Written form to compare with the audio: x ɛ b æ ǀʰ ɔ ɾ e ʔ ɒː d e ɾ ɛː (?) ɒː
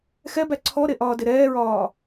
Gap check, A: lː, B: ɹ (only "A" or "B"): B